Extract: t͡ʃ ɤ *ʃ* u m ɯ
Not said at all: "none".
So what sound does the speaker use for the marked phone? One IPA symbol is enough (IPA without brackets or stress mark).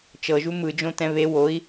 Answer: ʒ